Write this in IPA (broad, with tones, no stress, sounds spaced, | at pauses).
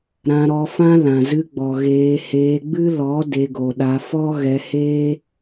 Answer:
ɾ ã˧ ɾ ɔ˧ f ã˦ l ã˨ z ɨ˧ ɡ͡b ɔ˨ ɣ eː˧ h eː˧ ɡ͡b ɨ˦ l ɔ˨˦ d e˧ ɡ o˨ ɗ a˧ f ɔ˦ ɣ ɛ˧ h eː˦